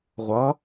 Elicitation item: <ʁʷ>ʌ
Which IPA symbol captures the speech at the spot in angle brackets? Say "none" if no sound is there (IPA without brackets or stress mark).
ʁʷ